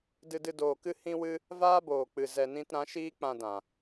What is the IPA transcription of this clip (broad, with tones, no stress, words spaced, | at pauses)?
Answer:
dɨ˧dɨ˧ doː˨kɨ˧ hĩ˦wɨ˦ | vaː˦boː˨k͡pɨ˨ zɛ˨nĩ˧t ɾã˨˦ʃiː˦k͡pã˧dã˨